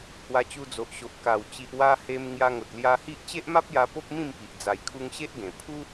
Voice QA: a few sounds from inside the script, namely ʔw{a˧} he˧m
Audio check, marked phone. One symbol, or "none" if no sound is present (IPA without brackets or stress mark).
a˧